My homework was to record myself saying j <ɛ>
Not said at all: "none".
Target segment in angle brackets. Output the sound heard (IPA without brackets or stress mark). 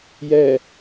ɛ